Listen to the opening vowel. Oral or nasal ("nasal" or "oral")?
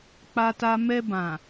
oral